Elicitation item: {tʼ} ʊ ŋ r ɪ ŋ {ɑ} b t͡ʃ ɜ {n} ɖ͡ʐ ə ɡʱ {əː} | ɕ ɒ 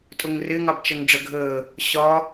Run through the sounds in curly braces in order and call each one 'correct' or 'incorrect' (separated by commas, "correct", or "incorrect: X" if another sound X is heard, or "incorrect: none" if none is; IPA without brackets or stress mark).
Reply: correct, correct, incorrect: ŋ, correct